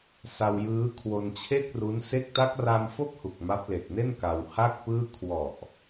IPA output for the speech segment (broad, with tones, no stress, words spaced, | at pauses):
sa˧wjɯː˦˥ kʰwo˧nt͡ɕʰe˥˩k̚ru˦˥n se˦˥k̚ta˦˥k̚ra˧m fo˥˩k̚hu˨˩k̚ ma˦˥p̚le˨˩k̚ne˥˩n ka˧wha˥˩k̚pɯː˥˩ kʰwɔ˨˩ʔ